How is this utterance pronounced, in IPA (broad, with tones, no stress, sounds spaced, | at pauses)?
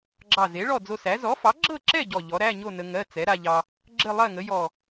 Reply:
ɡ͡ǁ ɑ˧˩ z e˩˥ ɭ ɔ˥˨ d͡z o˧ s æ˩˥ z ɔ˩˥ f ɑ˩˥ ɡ͡ǁ ɤ˥˨ ǁ ɛ˥˨ ɟ ɔ˧˩ ʎ ɔ˩˥ ɾ æ˧˥˧ ɲ o˥˨ n ə˧ ŋ ɜ˧˥˧ t͡s ɛ˩˥ ɾ a˧ ʎ ɑ˧ | ɡ͡ǁ ə˥˨ lˠ ɜ˥˨ ŋ ə˩˥ j ɔ˧˩